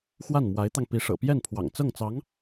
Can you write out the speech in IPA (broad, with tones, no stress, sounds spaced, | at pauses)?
x w a˥˩ n m w a˧˥ ɪ̯ t̪ ɑ˧ ŋ p i˧˥ ʂ ɤ̰˨˩ p j ɛ˥˩ n pʰ w ɑ̰˨˩ ŋ t͡s ɤ˥˩ ŋ t͡s ɑ˧˥ ŋ